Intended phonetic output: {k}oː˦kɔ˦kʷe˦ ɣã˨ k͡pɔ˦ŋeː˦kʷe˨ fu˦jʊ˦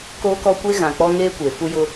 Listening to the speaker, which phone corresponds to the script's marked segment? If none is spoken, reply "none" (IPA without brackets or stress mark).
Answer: k